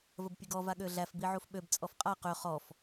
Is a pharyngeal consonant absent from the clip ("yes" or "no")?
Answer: no